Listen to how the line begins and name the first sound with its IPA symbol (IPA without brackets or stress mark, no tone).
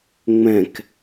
ŋ͡m